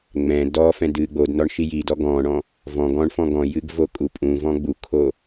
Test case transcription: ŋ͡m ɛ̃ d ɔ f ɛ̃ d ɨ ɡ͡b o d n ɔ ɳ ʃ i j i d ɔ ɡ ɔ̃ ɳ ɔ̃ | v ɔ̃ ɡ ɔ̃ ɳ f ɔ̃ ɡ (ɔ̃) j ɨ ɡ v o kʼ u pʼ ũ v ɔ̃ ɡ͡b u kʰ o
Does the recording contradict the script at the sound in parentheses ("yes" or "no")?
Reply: no